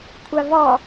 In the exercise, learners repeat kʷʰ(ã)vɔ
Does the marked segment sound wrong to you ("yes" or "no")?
yes